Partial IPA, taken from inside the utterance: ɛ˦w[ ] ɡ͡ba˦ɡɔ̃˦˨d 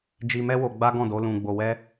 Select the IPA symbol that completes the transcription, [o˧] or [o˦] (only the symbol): o˧